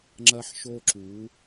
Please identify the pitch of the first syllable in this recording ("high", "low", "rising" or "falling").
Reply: high